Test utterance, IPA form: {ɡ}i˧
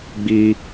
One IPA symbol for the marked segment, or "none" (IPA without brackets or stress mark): ɡ͡b